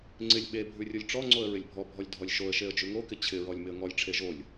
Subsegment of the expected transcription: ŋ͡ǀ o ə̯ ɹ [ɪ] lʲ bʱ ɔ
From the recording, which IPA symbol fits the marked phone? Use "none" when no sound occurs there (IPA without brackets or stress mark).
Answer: ɪ